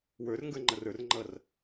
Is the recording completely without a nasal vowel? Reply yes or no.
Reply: yes